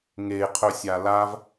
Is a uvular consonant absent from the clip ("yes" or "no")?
no